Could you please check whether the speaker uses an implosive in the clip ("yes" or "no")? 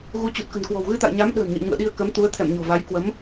yes